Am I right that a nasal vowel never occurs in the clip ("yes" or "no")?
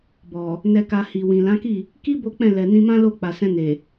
no